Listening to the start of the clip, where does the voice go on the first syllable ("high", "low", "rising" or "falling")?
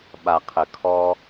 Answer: low